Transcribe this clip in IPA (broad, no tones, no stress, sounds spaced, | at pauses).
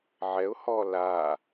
ʕ ɛ ʊ̯ h ɔ l a